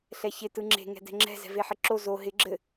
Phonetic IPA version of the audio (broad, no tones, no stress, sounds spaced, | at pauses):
ɬ ɛ ç ɪ t ɯ ŋ͡ǁ e̤ ŋ ɛ̤ d ɛ̤ ŋ͡ǁ ɛ̤ z ɛ̤ v e ħ ɪ ǁ o z o ɦ ɪ ɡ͡ǁ ɘ